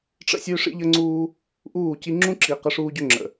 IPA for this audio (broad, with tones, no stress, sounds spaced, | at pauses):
ʈ͡ʂ ə̰˦ sʲ ø˦ ʂ ḭ˦ ʎ ə˦ ŋ͡ǀ uː˦ | ʔ uː˦˨ c i˦ ŋ͡ǁ ũ˦ ǁ i˨ q ə˦ ʂ uː˦ ɟ ø˦ ŋ͡ǁ ə̰˨